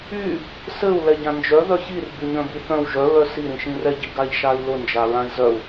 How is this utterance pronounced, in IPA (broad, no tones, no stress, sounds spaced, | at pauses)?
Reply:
y | s ɘ u̯ l ɛ ɟ ã n d͡ʒ œ ð œ ç i r b y ɲ œ̃ b i θ œ̃ w ʒ œ ɹ œ s i ɾ ĩ ʃ ĩ r ɛ ɟ i ɡ a ʎ ʃ a i̯ l ʊ n d͡ʒ a ɹ ã i̯ z œ u̯